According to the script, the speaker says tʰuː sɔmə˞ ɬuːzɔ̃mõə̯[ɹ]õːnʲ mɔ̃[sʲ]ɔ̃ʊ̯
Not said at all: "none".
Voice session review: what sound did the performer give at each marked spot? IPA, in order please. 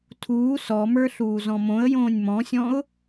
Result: j, sʲ

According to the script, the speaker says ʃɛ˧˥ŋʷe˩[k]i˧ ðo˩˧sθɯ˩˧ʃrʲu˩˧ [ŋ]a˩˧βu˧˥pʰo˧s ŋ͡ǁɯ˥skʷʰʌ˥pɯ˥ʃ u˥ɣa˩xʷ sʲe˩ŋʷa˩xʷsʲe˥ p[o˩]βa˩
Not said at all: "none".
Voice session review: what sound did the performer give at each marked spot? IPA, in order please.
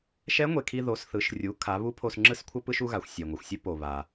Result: kʰ, kʰ, o˩

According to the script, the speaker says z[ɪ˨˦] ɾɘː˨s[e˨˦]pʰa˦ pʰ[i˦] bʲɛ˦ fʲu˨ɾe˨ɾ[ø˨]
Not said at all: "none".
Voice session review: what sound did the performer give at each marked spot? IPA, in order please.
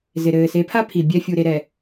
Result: ɪ˨, e˨˦, i˨, ɛ˨

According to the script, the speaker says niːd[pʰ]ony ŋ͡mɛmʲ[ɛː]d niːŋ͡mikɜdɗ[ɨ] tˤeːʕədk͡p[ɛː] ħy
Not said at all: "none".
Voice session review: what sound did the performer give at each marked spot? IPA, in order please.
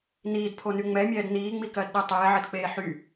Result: pʰ, ɛː, e, eː

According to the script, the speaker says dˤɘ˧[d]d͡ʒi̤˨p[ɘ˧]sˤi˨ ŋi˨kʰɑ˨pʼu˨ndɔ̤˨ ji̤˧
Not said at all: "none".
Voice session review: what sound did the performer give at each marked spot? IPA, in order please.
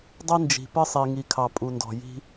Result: n, ɘ˧

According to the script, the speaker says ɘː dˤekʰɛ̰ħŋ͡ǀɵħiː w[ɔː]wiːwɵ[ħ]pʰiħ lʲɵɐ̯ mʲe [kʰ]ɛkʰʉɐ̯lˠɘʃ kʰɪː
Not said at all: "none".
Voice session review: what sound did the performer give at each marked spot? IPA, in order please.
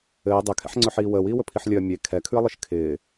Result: əː, none, kʰ

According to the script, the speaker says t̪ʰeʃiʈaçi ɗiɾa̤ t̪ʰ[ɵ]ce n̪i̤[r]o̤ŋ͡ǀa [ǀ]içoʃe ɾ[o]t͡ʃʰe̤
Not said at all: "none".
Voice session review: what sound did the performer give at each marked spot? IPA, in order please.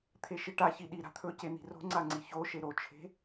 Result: ɵ, r, ŋ͡ǀ, o

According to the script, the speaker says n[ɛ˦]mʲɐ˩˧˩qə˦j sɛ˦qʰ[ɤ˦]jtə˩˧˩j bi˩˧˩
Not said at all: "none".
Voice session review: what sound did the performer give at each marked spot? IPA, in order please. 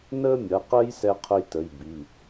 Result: ə˦, ɵ˦

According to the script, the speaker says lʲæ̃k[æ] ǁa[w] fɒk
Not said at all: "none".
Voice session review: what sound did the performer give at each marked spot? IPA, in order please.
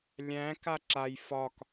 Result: a, j

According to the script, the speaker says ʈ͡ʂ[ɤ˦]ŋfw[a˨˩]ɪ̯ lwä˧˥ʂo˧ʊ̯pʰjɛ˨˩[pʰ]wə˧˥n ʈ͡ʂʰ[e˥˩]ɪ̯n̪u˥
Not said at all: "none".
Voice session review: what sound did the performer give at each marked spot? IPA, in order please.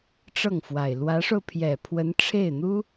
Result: ɤ˥˩, a˨˩, pʰ, e˥˩

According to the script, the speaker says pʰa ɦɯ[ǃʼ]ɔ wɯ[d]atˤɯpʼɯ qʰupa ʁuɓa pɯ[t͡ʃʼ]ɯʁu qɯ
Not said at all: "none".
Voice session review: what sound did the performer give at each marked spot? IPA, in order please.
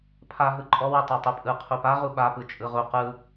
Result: ǃʼ, tˤ, t͡ʃʼ

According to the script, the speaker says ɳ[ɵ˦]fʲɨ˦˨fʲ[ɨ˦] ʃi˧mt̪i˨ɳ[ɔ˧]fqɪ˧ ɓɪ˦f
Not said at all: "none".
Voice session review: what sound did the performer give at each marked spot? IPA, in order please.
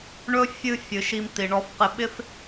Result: ɵ˦, ɨ˨, ɔ˧

